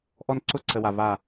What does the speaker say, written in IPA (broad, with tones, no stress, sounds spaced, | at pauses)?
ʔ ɔ˦ n ǀ ʊ˦ ǀ ə˨ w a˨ v a˦˨